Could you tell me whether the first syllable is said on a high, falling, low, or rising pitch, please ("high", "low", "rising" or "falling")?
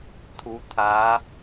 rising